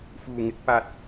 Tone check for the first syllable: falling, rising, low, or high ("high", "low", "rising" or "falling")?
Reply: low